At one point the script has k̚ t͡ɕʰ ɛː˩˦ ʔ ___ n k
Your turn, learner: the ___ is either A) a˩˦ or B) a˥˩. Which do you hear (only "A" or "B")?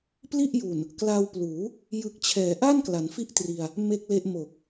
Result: B